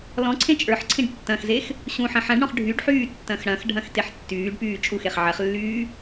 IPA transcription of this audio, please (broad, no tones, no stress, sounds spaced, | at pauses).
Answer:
l ɔ̃ ǀʰ ẽ t͡ʃʼ ə˞ ħ ǀʰ ĩ ɖ tː ɐ̃ x z e x | ɕ ũ ħ ɐ̃ ħ ɐ̃ ɖ ɽ ɔ̃ χ ɖʱ y ɖ ħ yː tː ɐ̃ x ɽ ɐ̃ x ɖʱ ɐ̃ x t e ħ tː yː ɖ p yː t͡ʃʼ u x e χ ʕ ɐ χ lː yː